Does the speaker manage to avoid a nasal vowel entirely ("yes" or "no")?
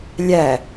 yes